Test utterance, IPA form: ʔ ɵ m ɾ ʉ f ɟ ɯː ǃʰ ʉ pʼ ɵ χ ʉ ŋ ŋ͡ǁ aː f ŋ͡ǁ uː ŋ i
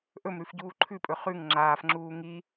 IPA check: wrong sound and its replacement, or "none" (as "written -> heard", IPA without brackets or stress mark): ɯː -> uː